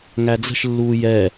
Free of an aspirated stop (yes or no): yes